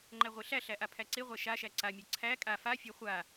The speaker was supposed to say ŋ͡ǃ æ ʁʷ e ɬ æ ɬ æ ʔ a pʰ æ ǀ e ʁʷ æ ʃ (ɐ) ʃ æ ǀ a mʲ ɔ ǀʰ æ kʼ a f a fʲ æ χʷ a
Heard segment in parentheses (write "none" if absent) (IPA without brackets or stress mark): a